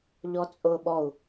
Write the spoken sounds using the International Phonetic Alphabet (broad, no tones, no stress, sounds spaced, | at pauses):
ʎ ɔ t͡sʼ ʊː ɓ ɔ u̯